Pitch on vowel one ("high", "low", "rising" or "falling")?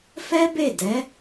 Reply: high